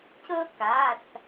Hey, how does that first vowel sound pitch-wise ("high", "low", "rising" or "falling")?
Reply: high